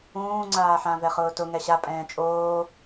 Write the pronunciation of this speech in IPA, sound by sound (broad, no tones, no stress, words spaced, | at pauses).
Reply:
ũːŋ͡ǀaːħã vɛχʊːtʊ ŋɛɕa pʼɛ̃ːt͡ʃʼoː